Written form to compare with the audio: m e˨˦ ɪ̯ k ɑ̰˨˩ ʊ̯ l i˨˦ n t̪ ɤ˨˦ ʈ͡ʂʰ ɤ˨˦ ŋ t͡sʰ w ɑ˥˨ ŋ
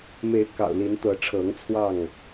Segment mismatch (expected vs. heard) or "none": none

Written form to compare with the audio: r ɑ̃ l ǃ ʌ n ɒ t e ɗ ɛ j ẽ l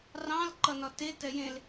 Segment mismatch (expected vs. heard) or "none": ɗ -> t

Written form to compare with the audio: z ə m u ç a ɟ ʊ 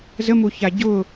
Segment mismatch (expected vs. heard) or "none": none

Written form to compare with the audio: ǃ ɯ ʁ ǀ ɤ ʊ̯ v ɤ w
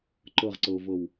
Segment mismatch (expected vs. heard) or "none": ɯ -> ɤ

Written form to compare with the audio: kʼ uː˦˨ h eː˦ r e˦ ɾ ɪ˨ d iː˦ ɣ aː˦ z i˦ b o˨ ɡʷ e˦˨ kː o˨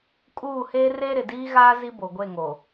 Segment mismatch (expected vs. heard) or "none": kː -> ŋ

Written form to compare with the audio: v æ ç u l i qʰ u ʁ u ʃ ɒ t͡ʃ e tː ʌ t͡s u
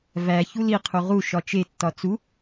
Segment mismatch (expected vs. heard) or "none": ʌ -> ɒ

